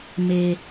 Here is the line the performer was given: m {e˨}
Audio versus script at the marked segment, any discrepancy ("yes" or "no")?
yes